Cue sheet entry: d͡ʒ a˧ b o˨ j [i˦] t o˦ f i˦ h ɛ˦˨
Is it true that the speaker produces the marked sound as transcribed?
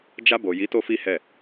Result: no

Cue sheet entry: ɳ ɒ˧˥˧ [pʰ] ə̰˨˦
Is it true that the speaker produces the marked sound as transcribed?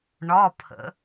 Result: yes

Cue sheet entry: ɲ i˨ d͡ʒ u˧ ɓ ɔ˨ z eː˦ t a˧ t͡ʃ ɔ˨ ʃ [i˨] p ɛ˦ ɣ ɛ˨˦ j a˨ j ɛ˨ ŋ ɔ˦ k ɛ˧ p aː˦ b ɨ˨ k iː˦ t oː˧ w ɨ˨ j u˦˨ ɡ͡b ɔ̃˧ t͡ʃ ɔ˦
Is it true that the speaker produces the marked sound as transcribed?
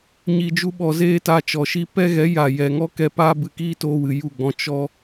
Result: no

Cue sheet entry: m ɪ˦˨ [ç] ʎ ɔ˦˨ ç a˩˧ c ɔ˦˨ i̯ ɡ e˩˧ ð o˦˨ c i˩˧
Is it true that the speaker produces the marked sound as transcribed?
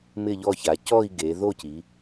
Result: no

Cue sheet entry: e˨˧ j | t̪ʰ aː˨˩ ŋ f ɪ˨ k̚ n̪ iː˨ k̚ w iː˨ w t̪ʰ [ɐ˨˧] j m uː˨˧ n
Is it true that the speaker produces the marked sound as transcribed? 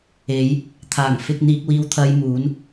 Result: yes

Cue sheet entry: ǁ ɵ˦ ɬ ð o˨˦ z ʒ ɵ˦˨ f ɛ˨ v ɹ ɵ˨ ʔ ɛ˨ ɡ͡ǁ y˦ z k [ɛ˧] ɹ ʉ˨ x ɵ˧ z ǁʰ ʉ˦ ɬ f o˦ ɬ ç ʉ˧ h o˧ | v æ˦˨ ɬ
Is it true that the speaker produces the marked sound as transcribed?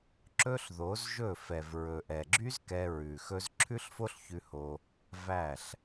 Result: yes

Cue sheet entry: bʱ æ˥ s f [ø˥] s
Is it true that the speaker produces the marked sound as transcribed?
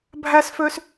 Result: yes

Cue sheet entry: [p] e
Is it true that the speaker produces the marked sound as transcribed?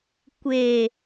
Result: no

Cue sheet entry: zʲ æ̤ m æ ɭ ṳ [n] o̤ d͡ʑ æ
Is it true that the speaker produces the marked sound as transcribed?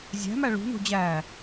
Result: yes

